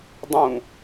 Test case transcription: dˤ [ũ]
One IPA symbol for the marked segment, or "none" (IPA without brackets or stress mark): ũ